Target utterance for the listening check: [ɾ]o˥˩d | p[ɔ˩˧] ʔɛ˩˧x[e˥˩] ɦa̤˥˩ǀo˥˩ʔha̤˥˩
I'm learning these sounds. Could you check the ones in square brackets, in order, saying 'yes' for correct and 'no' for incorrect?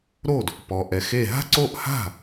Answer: yes, yes, yes

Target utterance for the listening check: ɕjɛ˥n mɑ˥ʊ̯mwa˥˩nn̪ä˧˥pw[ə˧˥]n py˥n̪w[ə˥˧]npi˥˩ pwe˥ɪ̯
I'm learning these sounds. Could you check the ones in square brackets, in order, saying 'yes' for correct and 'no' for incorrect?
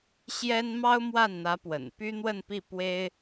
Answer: no, yes

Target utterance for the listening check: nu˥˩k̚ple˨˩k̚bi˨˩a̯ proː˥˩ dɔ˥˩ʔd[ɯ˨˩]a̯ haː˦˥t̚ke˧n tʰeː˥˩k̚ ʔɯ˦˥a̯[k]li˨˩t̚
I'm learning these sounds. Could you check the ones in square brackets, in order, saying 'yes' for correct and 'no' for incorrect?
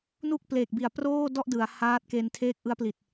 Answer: no, no

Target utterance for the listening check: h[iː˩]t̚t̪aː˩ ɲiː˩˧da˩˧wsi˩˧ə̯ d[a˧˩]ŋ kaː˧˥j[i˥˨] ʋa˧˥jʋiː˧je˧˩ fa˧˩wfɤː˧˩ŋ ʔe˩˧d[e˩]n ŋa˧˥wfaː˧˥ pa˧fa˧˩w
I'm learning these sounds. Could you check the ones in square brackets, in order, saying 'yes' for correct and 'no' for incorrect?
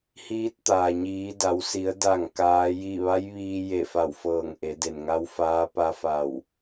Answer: no, yes, yes, yes

